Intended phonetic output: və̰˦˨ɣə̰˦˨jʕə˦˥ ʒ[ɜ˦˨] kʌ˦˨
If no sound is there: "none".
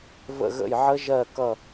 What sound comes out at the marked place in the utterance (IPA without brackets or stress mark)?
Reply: ɜ˦˨